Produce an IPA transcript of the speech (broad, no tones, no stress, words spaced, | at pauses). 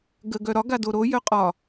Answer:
ɡə ɡœɾɒ ɡadoɾo jœqʼɒ